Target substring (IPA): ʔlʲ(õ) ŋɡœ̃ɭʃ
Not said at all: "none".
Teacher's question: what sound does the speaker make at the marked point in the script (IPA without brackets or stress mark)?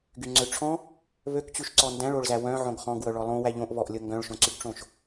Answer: o